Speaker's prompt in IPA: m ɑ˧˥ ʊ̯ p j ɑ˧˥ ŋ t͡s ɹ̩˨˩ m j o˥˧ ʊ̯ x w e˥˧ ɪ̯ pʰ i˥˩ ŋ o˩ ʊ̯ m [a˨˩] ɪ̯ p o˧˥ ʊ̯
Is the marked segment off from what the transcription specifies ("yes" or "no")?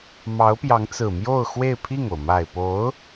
no